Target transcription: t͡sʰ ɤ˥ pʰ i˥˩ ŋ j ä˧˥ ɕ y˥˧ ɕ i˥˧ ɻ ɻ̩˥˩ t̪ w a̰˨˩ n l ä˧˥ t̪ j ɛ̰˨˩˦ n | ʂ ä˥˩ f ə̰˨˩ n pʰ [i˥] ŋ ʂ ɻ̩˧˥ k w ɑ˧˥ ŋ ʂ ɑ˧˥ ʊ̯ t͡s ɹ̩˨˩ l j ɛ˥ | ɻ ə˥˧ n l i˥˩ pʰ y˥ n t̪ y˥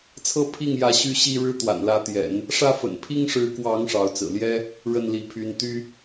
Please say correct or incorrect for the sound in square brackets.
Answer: correct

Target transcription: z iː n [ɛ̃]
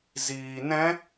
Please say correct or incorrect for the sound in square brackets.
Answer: correct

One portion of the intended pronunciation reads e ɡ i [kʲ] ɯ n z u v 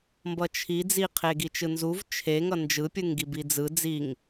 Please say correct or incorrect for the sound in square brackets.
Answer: incorrect: t͡ʃ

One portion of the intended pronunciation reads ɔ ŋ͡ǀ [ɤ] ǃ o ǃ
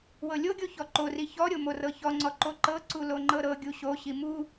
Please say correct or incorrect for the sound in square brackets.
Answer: incorrect: ɔ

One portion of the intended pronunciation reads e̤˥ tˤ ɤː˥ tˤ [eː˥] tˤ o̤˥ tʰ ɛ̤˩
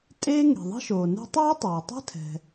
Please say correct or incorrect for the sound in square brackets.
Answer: incorrect: eː˩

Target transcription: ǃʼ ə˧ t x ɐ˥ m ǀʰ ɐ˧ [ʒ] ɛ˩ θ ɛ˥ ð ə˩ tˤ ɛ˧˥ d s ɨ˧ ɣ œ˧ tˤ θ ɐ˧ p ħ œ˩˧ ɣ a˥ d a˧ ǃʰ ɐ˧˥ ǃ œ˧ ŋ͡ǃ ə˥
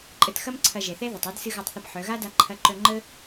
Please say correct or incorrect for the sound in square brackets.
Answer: correct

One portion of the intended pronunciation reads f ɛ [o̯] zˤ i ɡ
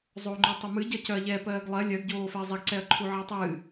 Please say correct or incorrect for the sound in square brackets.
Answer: incorrect: ɐ̯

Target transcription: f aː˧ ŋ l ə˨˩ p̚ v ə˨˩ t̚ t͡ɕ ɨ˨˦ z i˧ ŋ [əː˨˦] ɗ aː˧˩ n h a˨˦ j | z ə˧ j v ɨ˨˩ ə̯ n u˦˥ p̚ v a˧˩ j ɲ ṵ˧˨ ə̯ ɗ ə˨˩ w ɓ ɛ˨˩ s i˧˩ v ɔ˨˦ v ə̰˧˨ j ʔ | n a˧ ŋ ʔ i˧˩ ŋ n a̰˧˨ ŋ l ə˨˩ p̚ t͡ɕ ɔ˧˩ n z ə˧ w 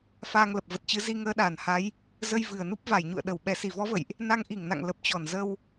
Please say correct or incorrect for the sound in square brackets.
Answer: correct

